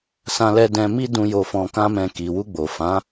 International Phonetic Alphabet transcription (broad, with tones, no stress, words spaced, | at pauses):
sã˧lɛ˧ dɛ̃˧mi˦dũ˧ jo˧fɔ̃˧kã˦mɛ̃˧ ki˨ wu˧ɡ͡bo˨fã˨˦